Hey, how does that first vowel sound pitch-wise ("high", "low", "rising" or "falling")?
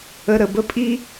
low